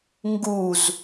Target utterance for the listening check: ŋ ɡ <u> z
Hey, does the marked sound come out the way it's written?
yes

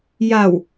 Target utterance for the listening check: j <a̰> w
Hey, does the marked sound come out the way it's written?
no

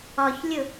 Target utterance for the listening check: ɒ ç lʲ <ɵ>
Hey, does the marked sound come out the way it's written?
no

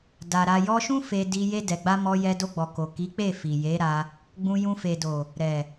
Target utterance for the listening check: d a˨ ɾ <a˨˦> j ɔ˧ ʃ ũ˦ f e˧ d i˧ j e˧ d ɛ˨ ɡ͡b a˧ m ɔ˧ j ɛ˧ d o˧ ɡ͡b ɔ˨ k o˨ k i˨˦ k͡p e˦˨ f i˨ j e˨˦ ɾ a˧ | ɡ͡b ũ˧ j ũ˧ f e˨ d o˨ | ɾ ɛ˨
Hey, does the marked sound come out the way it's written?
no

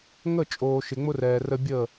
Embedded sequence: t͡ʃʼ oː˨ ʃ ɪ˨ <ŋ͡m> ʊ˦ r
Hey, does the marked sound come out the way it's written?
yes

